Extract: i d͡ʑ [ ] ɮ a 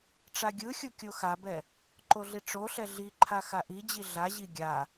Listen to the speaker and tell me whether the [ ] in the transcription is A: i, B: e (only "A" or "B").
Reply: A